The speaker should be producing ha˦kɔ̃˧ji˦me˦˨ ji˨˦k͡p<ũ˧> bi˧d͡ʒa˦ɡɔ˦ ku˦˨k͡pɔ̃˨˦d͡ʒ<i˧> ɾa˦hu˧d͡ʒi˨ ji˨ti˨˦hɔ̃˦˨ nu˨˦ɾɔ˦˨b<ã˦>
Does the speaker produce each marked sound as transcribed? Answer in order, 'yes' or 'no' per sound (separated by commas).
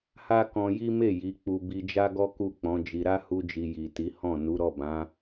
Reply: no, yes, no